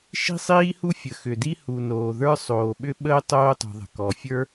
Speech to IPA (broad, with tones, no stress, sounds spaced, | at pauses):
ʃ i̤˥ sˤ iː˥ h u˥ fʲ ə˩ x ʏ˩ d i˥ h u˩ n oː˩ ð ə˞˥ sˤ oː˩ ɓ ʏ˥ ɓ əː˥ tˤ oː˥ tˤ ṳ˩ ðˤ ə̤˩ k ɔ˩ fʲ ə˞˥